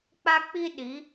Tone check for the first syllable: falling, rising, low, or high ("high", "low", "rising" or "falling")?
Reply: high